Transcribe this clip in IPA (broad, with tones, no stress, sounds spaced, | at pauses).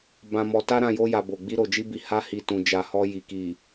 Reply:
b ã˧ m ɔ˧ t a˦ ɾ ã˦˨ j o˧ j a˨ b o˨ ɡ͡b i˧ ɾ o˨ d͡ʒ i˧ b i˨ h a˧ h i˨ t ũ˨ d͡ʒ a˨ h ɔ˧ j i˨ k i˨